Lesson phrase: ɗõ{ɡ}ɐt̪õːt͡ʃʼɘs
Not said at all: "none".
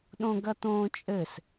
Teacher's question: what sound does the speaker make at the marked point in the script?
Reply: ɡ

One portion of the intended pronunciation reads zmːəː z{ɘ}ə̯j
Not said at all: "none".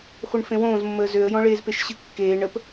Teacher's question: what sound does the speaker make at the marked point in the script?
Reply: ø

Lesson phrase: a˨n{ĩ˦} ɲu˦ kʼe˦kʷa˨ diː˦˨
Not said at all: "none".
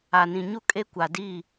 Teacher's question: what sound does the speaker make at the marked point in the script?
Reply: ĩ˨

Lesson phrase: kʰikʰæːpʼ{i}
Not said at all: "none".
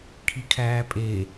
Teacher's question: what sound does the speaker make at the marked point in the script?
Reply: e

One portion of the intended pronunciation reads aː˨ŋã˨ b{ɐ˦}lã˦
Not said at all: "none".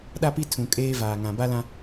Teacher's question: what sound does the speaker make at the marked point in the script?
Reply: a˦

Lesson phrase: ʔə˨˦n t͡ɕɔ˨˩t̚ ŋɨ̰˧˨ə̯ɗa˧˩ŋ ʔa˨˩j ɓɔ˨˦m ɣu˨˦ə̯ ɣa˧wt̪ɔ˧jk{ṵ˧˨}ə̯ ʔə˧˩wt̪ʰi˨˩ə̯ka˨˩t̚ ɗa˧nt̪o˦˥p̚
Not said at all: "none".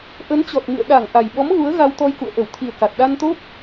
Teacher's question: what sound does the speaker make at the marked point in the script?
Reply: ṵ˧˨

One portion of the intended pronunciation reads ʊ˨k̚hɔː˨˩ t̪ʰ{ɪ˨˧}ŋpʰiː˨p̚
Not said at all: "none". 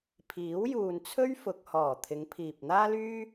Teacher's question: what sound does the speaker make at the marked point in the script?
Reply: ɪ˨˧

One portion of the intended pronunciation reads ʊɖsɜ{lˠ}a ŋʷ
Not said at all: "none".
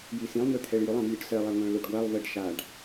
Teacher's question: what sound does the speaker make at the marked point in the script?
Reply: lˠ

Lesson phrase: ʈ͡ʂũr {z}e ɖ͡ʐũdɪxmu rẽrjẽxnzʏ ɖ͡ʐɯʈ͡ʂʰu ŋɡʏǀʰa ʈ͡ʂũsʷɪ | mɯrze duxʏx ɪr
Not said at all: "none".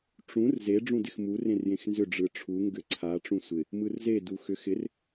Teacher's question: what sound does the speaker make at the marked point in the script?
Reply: z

